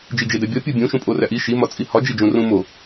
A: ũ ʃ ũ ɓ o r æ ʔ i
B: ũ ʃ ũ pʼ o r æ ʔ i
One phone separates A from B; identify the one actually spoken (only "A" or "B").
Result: B